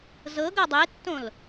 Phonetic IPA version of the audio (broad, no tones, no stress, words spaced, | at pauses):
zɤɡɤ dˤetːõl